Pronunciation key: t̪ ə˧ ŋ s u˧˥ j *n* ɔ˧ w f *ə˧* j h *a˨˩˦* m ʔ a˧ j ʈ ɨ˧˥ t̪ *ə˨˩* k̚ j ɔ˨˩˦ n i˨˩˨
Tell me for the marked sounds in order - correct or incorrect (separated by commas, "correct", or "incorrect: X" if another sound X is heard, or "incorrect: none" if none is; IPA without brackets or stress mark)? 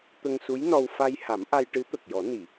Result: correct, incorrect: a˧, correct, correct